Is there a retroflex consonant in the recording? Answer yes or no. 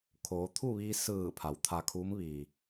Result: no